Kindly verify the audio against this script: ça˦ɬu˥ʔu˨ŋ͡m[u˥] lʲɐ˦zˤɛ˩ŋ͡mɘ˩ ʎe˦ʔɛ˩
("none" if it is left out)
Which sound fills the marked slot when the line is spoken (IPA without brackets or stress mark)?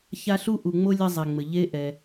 o˥